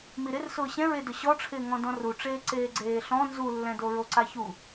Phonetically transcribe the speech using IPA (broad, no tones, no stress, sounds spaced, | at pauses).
m i ɾ ɪ r s ʊː ɕ ɛ̃ ɹ e d ʊ ɕ ɔ ʈ͡ʂʰ ɪː ŋ ɔ̃ d ɔ̃ r u ʈ͡ʂ eː ǀ eː ɡ͡ǀ eː ɬ ɔ̃ n z u lː ɛ̃ d o ɹ o ǀ a ç u